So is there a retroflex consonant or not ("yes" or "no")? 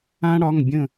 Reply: yes